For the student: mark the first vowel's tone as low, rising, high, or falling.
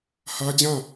high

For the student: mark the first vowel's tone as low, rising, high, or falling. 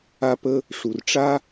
high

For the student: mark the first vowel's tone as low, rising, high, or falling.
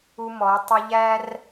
high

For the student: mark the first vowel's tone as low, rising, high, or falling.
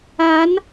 rising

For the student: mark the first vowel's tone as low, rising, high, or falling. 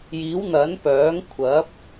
rising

